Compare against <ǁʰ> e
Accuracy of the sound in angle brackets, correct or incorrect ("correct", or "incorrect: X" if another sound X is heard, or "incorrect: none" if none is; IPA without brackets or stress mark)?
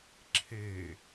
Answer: correct